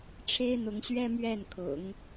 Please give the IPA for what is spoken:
ʈ͡ʂʰ e˥ ɪ̯ n̪ ʊ˧˥ ŋ ɕ ɥ ɛ˥ m ɥ ɛ˥˩ n kʰ ʊ̰˨˩˦ ŋ

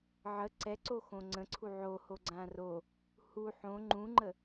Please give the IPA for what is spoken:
ʕ ə ǀ ɛ ǀ o x õ ŋ͡ǀ ə̃ ǀʰ u ʕ o h o ɡ͡ǀ ã r o | h u ħ õ ŋ͡ǃ ũ ŋ͡ǃ ə

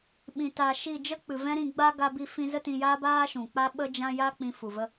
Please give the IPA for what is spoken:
ɓ ĩ˧ t a˧ ʃ i˦˨ d͡ʒ ə˦ k͡p ɨ˨ v ɛ̃˦ ɾ ĩ˧ ɡ͡b a˦ ɡ a˧ b i˧ f ĩ˧ z ə˦ t ĩ˧ j aː˦ b aː˦ ʃ ũ˨ k͡p a˦ ɓ ə˦ d͡ʒ ã˦ j a˦ k͡p ĩ˧ f u˨ v ə˦

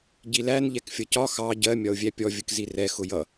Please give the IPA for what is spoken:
ɟ i l æ n ʎ ɛ k fʲ ʌ c ɒ x ɑ ɟ ɜ mʲ ɒ ʊ̯ vʲ æ pʲ ɔ vʲ ə k z i r ɛ x ʊ j ʌ

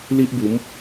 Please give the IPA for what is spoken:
l i˦ ʔ b u˨˦ m

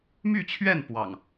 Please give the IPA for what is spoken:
m y˥˨ t͡ɕʰ ɥ ɛ˥˨ n p w ɑ̰˨˩ ŋ

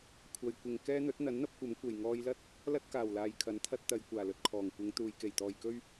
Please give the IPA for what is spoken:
kʷʰ ɐ˨ j kʷ ɪ˨ ŋ k ɛː˥ n̪ ɵ˨˥ t̚ n̪ ɐ˨˥ n n̪ ɐ˥ p̚ kʷ ɐ˨˥ m kʷ e˨˩ j ŋ ɔː˧ j l ɐ˥ t̚ | l ɐ˥ t̚ k aː˨˩ w l aː˨ j kʰ ɐ˨˥ n t̪ʰ ɐ˥ t̚ t̪ ɐ˧ j kʷ aː˨˩ l ɵ˨ t̚ kʰ ɔː˨˩ ŋ kʷ ɪ˨˧ ŋ t̪ uː˨ j k e˨˩ j t̪ ɔː˨ j k ɵ˥ ɥ

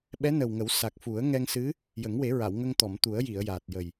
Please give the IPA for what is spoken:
ɓ ɛ˧˥ n ə˨˩ w ŋ ə˨˩˦ w s a˨˩ k̚ f u˨˩˦ ə̯ ŋ ɛ˧ ŋ s ɨ˧˥ | j ə˨˩˦ ŋ w e˨˩˦ ɹ a˨˩˨ w ŋ ə˧ ŋ t̪ ɔ˨˩˨ m t̪ u˨˩˦ ə̯ j i˨˩˨ ə̯ j aː˨˩ t̚ j ə˨˩ j

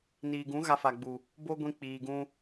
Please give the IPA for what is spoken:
n iː˨ ɡ ũ˨˦ ɣ a˧ f a˨ ɡ͡b u˨ | b o˦ ɡʷ ĩ˧ k͡p iː˨ ɡ ũ˧

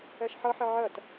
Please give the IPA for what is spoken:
ɛ ʃ ħ ʌ ħ ɪ ʕ ɜ t

